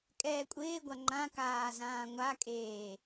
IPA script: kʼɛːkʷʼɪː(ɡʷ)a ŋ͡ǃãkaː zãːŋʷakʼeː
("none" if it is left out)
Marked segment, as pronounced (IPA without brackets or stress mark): ɡʷ